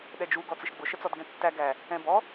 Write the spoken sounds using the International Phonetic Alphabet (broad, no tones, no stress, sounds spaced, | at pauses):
ɗ ɛ d͡ʒ u ɡ ɔ t͡s ɪ ʃ ɡ͡b ʊ ʃ ə t͡s ɔ d ɡ ɛ̃ tː æ ɡ æ | ɛ̃ b ɔ